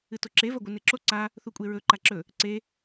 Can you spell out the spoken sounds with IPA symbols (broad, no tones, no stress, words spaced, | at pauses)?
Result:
ɨtoǁe vɐɡʷɨneǁo ǀa | θukʷʼeɹɵ ǃaǁɵ | ǀe